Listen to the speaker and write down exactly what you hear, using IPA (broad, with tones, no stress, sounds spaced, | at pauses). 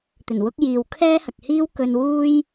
t̪ ɵ˨˩ n w ʊ˥ k̚ j iː˨ w kʰ ɛː˥ h ɐ˨ k̚ h iː˥ w k ɵ˧ n w uː˥ j